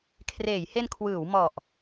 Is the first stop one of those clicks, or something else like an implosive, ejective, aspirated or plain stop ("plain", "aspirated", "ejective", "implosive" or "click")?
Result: aspirated